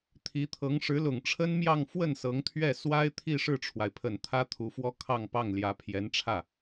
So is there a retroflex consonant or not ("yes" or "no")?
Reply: yes